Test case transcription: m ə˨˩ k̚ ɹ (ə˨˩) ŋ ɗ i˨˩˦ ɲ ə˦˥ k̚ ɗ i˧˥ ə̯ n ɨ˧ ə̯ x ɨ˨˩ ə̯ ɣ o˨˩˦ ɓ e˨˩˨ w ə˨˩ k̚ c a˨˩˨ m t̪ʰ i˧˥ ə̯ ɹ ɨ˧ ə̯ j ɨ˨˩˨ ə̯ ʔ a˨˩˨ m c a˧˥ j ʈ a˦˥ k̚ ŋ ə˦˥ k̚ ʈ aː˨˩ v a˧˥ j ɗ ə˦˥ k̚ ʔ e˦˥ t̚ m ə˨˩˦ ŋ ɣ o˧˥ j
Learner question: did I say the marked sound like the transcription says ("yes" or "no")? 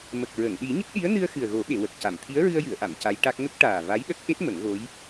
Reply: no